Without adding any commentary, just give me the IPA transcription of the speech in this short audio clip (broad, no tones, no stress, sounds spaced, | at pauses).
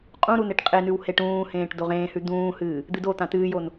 qʼ ũ ɾ u n e ʈ qʼ e n ʉ w h e ʈ ũː h ẽː ʈ d o ʁ ẽː h ʉ d̪ ũː h ɨː | d̪ ɨ d o t̪ ã t ɨː j o n